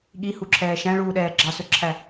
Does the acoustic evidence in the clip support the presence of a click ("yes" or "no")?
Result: yes